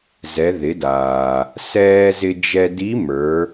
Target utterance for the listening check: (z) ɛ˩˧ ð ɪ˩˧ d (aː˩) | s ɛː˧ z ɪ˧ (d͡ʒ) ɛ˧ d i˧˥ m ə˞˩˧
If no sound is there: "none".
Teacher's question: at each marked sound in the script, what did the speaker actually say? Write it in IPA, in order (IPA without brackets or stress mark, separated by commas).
z, aː˩, d͡ʒ